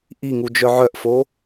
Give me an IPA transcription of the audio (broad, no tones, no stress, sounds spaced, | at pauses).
ʔ i ŋ u d͡ʒ œ ʕ œ ʔ f o